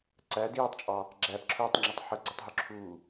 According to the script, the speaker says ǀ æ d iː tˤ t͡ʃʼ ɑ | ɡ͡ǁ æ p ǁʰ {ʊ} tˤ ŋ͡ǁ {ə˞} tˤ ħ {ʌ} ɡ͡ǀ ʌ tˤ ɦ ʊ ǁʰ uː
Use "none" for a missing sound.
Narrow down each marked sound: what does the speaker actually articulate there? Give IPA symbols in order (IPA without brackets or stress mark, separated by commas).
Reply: ʊː, ʌ, ʌ